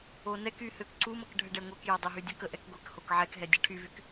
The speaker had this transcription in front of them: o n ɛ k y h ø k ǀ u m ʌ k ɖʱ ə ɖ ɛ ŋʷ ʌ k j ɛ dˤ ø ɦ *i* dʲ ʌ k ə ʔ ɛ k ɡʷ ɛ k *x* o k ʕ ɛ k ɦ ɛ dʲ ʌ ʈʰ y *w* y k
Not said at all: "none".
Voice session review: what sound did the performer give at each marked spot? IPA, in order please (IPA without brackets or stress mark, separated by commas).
y, h, v